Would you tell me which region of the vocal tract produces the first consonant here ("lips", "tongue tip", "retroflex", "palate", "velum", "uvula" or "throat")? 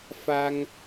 lips